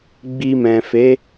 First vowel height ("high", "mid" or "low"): high